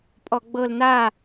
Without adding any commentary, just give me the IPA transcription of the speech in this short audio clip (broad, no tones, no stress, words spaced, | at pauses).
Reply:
pʼɔɡ͡bɤl na